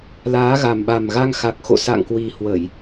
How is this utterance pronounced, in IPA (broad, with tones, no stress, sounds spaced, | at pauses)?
l aː˨˦ ɣ a˨˩ m ɓ a˨˩ m ɣ a˧ ŋ x a˨˩ k̚ x o̰˧˨ s a̰˧˨ ŋ k w i˨˩ h w ə˧˩˨ j